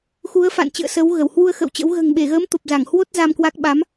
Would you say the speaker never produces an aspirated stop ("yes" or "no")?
yes